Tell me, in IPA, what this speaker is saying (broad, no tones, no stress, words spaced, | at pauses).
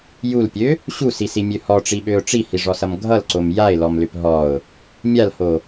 julpʲø | ɕusisimʲø hɔʈ͡ʂiɓøʊ̯ ʈ͡ʂihiʐɔsʌm ɡʱʌlǀom jaɪ̯lɔmlʏp ɦɔʊ̯ | mʲalho